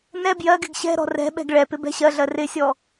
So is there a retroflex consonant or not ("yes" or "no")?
yes